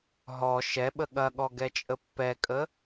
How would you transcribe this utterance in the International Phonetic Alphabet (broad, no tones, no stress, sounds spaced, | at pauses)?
ɦ ɔ ʃ ɛ ɓ ə ɠ ɐ ɠ ɔ ɡ ɛ t͡ʃʼ ə pː ɛ kʼ ə